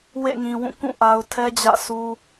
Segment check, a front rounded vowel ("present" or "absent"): absent